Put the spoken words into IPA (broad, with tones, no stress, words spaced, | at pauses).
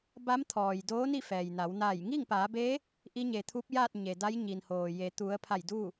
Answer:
ba˧˥mt̪ʰɔː˩j doː˧˥ni˥˨fɛː˩jna˩˧w na˧˩j ŋiː˥˨ŋpaː˩˧beː˧˥ | ʔi˧˥ɲe˩t̪ʰu˧˥p̚jaː˥˨t̚ ɲe˩da˧˥j ɲi˩nhoː˩je˩˧ t̪u˩˧ə̯ pʰa˧˩jdu˥˨